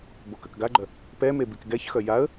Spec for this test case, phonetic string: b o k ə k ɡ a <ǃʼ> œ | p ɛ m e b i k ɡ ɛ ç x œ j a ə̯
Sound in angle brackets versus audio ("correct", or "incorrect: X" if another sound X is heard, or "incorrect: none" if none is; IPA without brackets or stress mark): incorrect: ɡ͡ǃ